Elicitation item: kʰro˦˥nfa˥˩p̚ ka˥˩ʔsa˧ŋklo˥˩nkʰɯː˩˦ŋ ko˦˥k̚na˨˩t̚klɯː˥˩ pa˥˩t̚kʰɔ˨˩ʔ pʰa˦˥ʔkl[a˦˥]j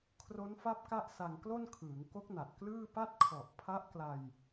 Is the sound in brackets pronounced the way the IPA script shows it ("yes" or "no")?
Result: no